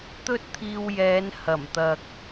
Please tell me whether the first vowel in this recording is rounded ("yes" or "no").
yes